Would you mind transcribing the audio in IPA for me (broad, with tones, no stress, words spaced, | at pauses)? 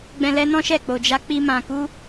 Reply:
ɡ͡bɛ̃˧lɛ˦nɔ̃˦ʃɛ˦˨ k͡po˨d͡ʒa˧k͡pi˧mã˨ ku˧